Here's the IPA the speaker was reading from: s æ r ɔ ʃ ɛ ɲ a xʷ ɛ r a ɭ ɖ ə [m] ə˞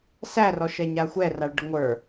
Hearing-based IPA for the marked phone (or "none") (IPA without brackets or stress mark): ŋʷ